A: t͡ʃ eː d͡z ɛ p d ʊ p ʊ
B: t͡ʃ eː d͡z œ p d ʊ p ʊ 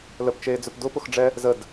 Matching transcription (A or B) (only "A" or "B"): B